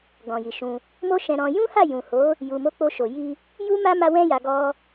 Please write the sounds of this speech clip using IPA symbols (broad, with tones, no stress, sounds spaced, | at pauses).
ɡ ɔ̃˨ j i˨ ʃ ũ˧ | m o˦ ʃ ɛ̃˧ ɾ ɔ̃˧ j ũ˦ h a˦˨ j ũ˨ h o˨˦ | j u˧ m o˦ k͡p o˦ ʃ o˧ j i˧ | j u˦ m a˦ m a˦ w ɛ̃˦ j a˧ ɡ ɔ˦